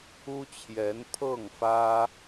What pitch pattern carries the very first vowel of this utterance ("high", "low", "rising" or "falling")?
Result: high